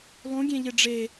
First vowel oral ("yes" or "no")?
no